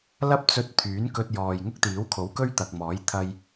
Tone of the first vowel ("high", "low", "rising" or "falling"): high